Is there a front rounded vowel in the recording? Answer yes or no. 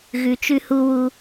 no